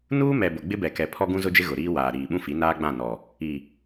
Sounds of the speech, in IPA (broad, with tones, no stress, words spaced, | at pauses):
nuː˦mɛ˨ bʊ˨ɡ͡bɪ˦bɛ˨kɛ˨ pʰɔ˦ɡũ˦zʊ˦d͡ʒɪ˦ ɣʊ˨ɾiː˦waː˨ ɾiː˨ɓũ˦fi˨˦ naː˦ɡ͡bã˦˨nɔ˨ | i˨